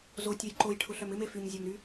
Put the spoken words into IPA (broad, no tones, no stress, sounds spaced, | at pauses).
z o tʲ œ j ǃ o j ʈʰ ʊ ɬ œ m ɪ m e f y ɲ zʲ ɔ m ɾ y